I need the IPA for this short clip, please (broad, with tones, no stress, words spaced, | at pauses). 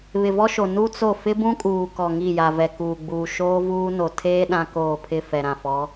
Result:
βɪ˨vɔ˦ʃo˨ nu˦t͡so˦˨ fɪ˦bũ˦kʼuː˨kɔ˨ ŋi˦˨ ja˨vɛ˨kuː˨ɡ͡buː˨ ʃoː˦vuː˦ no˨tʰeː˦ ɗã˦koː˦˨ pʰɪ˦˨fɛ˨ ɾã˨fɔ˨˦